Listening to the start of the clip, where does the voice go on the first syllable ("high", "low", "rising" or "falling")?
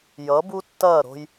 rising